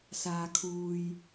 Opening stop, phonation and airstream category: aspirated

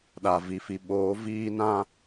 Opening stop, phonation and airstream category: implosive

